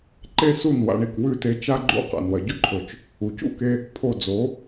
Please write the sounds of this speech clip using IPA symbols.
ǃe˥su˥˩n wa̰˧ɳi˩kwʉ˥˩te˧ t͡ʃa˥ɡ͡ǃṵ˥˩ qa̰˩nwɐ˩ɟɵ˥ǃʰɵ˩t͡ʃ | u˩cṵ˥˩ke˧ | pʰo˥˩ d͡zo˩˥

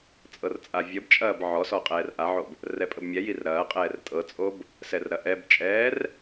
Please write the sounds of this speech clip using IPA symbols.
t͡sʼɤrt͡sʼavʲəbt͡ʃʼɐːb ʕɔsɔ qʼɛːrʔaʕob | rɛpʼəbmʲɛjir ɾɐːqʼɛːr tʼɤt͡sʼob | sɛrɾɐʔɛbt͡ʃʼɛːr

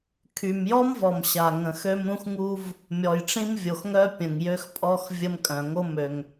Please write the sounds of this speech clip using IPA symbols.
kʰy˩mjɔ˥mvɔ˩mɕa˩ ŋə̃˩xø˥m ɾũ˥xŋu˥v | mʲɔ˩jʈ͡ʂĩ˥mvʲo˩xŋœ˥ pʲə̃˩ŋ jø˥xpʼɔ˥x vʲə˥mkʼœ̃˩ ŋo˥mø˩ŋ

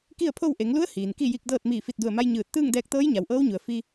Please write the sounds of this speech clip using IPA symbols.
ki˥˨ə̯pʰo˥˨w ʔe˩˧ŋlu˧˥ə̯ hiː˩nki˥˨ji˧k̚dɤː˥˨t̚ miː˧˩fi˧˩t̚du˧˩ə̯ma˧j ɲɯː˧˩t̚ t̪ɯː˥˨ŋdɛː˧k̚t̪ɤː˧˥j ɲa˩wʔɤː˧˥wɲu˩ə̯ fi˧

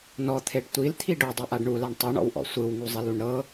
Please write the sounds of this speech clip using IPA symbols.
nɔt̪ʰeɖ tʷilt̪ʰi ɖodˤeʔaɖ ɳulaɳ tˤuɳɔ̰wʔɔ̰ sʷɯwŋuzˤiluɳ ɾɤ

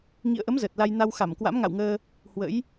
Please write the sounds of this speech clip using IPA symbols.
ŋḭ˧˨ə̯ʔə˨˦m zəː˨˩t̚la˧j na˧wxa˧˩m kwa̰˧˥mŋa̰˧˨wŋəː˧ | hwə̰˧˥j

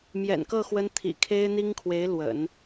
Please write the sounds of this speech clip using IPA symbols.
mjɛ̰˨˩nkɤ˥˩ xwə˥n t̪ʰḭ˨˩kʰe˥ɪ̯n̪i˥ŋkʰwe˧˥ɪ̯ lwə̰˨˩˦n

